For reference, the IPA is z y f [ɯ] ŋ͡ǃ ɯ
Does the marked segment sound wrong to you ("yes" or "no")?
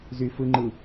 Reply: no